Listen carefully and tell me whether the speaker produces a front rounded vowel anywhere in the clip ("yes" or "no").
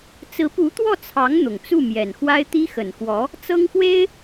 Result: no